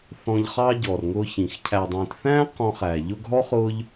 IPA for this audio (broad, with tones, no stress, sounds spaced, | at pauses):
θ ɔ̃˦ ʎ χ ɑ˥ ɟ ɔ˨ r ŋ ʊː˦ ç ĩ˨ x cʰ æ˨ dˤ ĩː˨ t θ æ̃ː˥ q ɔ̃˦ χ æ˨ ʎ ʊ˥ ɡ ɦ ɔ˥ χ ʊː˦ ʎ